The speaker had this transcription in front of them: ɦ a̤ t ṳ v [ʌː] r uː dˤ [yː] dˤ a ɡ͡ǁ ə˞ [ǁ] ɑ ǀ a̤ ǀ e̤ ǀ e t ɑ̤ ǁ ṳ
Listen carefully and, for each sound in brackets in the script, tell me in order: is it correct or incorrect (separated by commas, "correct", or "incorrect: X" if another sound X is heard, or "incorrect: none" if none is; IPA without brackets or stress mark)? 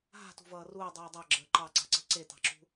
correct, correct, incorrect: ǃ